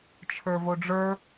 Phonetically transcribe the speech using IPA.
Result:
t͡ʃʰ ə˞ v o ɖ͡ʐ ə˞

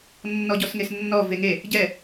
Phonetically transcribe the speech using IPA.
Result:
nː ɔ ɟ ɔ s ŋ e s nː ɔ v e ŋ e | ɟ ɛ

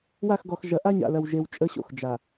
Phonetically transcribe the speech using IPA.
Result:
w a˦˨ x ɡ ɔ˨ x ʒ ɐ˨˦ ʔ a˦ ɲ a̰˨ l ɐ˨ w ʒ e˨ w t͡ʃʼ ə˦ ɕ o̰˨ x d͡ʒ a˨

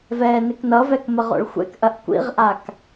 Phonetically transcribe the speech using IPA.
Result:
v ɛː n ɪ k n ʌ v ɛ k m ə ʁ o̰ ɭ xʷ ɛ̰ k ʔ ɐ ʔ kʷ ḭ ʁ ʔ a k

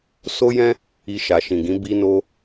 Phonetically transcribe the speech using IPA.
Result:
s o˦ j ɛ̃˦ | i˧ ʃ a˨ ʃ ĩ˨ ɡ ĩ˨˦ b i˦ n o˦

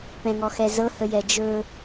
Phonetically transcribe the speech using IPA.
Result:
p ɛ̃ ŋ ɔ x ɛ z ɤ h ə j ɛ d͡ʒ ɵ

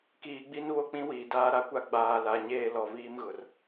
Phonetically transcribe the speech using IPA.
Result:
k iː˨ ɡ͡b i˦ n β o˦ k͡p ĩ˦ w iː˨ d aː˦ ɾ a˦ kʷ a˦ ɡ͡b aː˨ l a˨ ɲ eː˦ l ɔ˨ v iː˦ m ɣ ʊ˨ r

